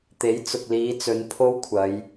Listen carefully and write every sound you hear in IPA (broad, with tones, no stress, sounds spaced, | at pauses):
t̪ e˨˥ j t͡s ʊ˨ k̚ l iː˨˧ t͡s ɵ˨˧ n pʰ o˥ w kʷʰ ɐ˨˧ j